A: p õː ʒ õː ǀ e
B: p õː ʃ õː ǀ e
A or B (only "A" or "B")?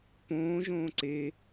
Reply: A